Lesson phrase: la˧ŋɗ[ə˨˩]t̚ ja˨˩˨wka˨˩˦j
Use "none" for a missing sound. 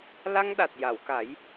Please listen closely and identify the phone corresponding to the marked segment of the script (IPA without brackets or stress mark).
a˨˩